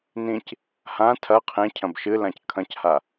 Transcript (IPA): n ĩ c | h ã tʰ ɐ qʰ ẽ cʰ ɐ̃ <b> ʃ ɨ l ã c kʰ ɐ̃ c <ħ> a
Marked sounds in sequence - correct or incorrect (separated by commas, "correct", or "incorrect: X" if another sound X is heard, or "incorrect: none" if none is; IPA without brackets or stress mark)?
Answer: correct, incorrect: h